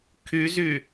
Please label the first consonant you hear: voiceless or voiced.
voiceless